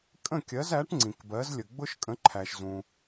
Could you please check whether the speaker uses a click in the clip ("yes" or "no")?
yes